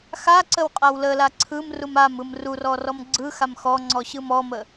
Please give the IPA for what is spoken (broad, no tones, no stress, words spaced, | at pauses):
xaǀəw qʼawləla ǀʰɯm rumamɯm rurɔ rɔmɡ͡ǀɯxam xɔŋ͡ǀɔ ɕɯmɔmə